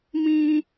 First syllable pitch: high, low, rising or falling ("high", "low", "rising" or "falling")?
high